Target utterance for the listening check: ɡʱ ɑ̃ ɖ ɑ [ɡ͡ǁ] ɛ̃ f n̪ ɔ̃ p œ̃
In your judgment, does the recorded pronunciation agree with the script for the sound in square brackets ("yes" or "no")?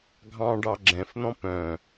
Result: yes